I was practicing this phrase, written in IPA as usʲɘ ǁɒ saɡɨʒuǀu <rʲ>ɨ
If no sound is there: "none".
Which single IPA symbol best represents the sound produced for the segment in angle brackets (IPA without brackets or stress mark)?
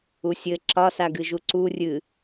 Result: rʲ